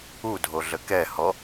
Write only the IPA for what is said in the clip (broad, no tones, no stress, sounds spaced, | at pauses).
u dʱ o ɮ ə k ɛ h ɔ